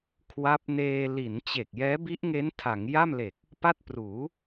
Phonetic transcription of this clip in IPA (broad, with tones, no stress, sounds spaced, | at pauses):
kʰ w a˦˥ p̚ n eː˧ l i˩˦ n t͡ɕ e˨˩ k̚ j ɛː˦˥ b i˦˥ ʔ ŋ e˦˥ n tʰ a˩˦ ŋ j a˥˩ m l e˨˩ k̚ | p a˥˩ t̚ p r uː˩˦